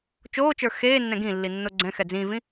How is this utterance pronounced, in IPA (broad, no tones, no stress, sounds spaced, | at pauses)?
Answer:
t͡ʃ oː t͡ʃ ə˞ x eː nː ɛ̃ ɡ ĩ lː i nː o ɡ͡ǀ ɛ̃ x ɛ d͡z ĩː v ĩ